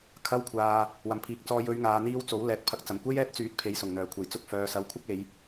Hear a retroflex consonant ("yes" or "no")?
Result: no